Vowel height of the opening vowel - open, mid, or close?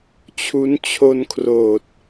close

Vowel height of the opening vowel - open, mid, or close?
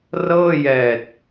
mid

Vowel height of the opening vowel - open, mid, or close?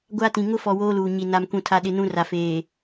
open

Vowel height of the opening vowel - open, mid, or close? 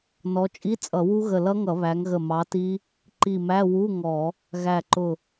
mid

